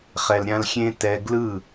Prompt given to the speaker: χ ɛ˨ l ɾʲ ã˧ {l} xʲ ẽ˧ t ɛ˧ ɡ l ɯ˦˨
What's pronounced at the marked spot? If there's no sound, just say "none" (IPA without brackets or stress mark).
l